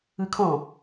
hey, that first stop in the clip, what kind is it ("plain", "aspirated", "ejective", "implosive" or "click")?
aspirated